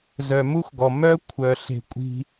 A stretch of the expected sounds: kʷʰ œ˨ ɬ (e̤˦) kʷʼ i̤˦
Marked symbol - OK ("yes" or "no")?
no